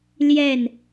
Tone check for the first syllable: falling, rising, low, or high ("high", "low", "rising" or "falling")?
falling